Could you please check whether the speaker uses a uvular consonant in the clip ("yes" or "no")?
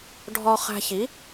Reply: yes